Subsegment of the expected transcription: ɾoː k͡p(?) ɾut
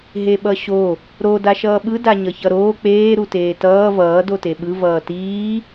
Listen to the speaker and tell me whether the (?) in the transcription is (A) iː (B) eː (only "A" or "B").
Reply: B